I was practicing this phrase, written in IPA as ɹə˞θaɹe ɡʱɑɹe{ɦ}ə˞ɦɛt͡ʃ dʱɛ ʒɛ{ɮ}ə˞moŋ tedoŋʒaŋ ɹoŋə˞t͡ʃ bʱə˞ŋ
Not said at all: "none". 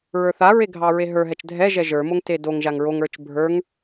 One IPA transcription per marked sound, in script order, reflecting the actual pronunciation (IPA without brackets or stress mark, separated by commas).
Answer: ɦ, ʒ